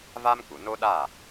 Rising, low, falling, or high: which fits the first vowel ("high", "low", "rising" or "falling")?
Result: high